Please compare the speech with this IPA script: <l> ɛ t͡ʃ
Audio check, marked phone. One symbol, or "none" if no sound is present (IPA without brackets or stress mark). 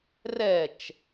r